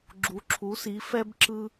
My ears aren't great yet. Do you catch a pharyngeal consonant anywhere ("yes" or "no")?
no